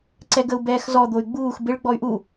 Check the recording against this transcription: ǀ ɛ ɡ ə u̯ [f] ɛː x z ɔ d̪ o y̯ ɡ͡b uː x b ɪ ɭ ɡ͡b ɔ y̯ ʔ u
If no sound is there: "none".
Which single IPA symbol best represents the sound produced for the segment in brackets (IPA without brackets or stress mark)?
b